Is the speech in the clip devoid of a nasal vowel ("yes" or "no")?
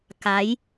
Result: yes